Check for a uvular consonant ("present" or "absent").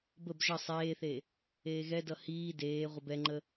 present